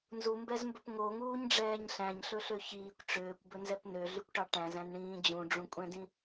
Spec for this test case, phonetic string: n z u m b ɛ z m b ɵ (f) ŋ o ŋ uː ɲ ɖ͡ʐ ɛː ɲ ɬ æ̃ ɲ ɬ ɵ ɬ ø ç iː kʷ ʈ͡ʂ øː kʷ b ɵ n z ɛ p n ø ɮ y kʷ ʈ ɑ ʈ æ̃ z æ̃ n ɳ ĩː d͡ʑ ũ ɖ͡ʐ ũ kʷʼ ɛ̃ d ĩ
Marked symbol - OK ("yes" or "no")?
no